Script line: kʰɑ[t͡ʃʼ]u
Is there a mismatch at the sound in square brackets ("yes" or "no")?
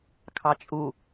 no